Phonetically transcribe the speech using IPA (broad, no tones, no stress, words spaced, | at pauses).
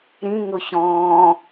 ɾĩ ŋʊçɔ̃ː